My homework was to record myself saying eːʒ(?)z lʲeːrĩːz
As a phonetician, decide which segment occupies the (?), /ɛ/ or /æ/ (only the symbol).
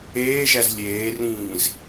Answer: æ